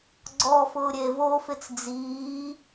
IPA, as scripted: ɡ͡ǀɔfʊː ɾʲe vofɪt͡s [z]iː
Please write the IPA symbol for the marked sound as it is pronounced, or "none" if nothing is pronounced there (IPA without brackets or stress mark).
d͡z